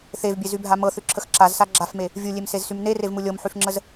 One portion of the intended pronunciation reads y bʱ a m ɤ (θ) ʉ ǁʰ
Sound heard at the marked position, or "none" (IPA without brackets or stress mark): θ